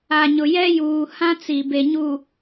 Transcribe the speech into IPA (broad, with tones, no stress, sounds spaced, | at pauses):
a˨ ɲ ʊ˨ j ɛ˦ j uː˨ h ã˦ t͡s i˨ b e˨ ɲ u˨